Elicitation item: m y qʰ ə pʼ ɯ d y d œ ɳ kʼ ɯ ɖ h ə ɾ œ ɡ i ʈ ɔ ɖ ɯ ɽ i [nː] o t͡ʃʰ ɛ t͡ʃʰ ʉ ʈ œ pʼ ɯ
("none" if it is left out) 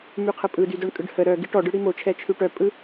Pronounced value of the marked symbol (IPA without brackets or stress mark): m